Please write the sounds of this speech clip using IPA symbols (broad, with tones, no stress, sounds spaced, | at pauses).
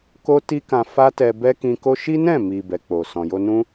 k o˦ t i˦ k ã˧ f a˦ t ɛ˧ b ɛ˦ k ĩ˧ k o˦ ʃ i˦ n ɛ̃˦˨ m i˨ b ɛ˨ k͡p o˨ s ɔ̃˨ j o˧ n ũ˦